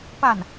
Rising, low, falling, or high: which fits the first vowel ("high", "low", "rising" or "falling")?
falling